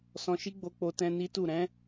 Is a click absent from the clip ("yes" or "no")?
yes